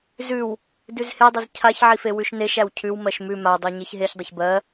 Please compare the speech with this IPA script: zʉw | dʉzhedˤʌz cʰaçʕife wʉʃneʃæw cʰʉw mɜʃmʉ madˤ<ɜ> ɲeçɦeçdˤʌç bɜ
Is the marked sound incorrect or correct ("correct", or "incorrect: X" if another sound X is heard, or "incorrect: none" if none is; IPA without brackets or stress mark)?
correct